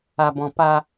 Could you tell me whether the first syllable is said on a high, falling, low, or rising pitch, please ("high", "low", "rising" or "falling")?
high